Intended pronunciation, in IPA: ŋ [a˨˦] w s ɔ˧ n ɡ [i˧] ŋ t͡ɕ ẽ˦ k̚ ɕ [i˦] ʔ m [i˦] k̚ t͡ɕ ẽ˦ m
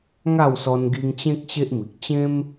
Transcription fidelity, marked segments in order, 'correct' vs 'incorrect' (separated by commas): incorrect, correct, incorrect, incorrect